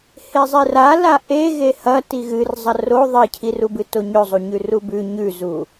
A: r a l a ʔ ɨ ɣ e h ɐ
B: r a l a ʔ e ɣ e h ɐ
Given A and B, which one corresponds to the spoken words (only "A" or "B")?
B